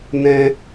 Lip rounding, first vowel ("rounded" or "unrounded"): unrounded